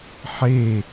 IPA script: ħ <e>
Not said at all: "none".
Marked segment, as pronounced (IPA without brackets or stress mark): e